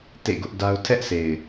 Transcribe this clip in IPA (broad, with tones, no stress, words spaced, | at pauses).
tḛ˦˨ɡʊ˦ʔda˦ʊ̯ tʰɛ˦ʔsʰe˨ɪ̯